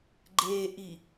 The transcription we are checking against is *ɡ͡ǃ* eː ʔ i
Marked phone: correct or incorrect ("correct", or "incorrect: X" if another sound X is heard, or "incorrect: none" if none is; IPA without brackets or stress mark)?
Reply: correct